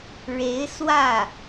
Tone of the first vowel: rising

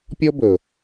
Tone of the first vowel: high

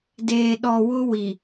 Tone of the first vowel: low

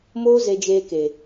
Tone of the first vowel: high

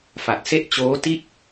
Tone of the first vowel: low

